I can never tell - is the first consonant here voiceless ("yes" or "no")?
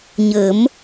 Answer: no